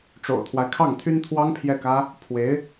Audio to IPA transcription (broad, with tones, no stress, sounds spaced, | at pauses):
ʈ͡ʂ o̰˨˩ ʊ̯ t̪ʰ w a˦ ɪ̯ kʰ ɑ˥˩ ŋ t̪ʰ y˥ n t̪ʰ w ɑ˥ ŋ pʰ j ɛ˥˩ k ä˥ | pʰ w e˧˥ ɪ̯